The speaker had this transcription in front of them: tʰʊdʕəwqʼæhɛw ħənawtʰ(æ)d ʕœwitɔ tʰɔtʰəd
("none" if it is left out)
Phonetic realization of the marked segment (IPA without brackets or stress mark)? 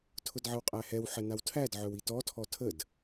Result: æ